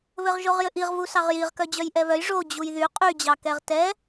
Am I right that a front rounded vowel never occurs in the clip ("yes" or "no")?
no